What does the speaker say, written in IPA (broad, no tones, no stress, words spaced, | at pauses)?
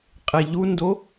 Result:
qʼeʎundo